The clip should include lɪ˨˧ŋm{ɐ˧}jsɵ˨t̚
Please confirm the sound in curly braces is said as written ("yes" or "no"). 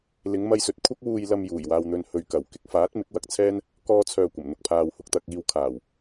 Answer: yes